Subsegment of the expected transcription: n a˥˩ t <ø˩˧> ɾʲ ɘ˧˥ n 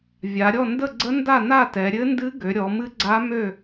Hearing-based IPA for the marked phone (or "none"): ɛ˩˧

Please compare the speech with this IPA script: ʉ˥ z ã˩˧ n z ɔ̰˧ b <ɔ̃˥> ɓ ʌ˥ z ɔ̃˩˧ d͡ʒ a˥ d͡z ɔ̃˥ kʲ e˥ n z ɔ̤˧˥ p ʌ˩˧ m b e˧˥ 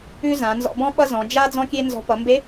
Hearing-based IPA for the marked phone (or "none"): ɔ̃˥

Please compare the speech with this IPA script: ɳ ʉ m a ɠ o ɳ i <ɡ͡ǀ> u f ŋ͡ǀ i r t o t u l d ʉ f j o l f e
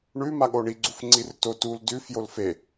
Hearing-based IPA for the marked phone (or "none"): ɡ͡ǀ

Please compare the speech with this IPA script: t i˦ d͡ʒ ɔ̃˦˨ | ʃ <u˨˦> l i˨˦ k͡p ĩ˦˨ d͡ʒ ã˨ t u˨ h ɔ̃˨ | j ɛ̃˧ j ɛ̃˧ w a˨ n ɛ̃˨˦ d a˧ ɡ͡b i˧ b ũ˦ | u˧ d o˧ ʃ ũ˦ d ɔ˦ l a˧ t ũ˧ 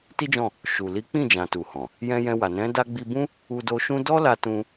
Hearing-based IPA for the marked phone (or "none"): u˨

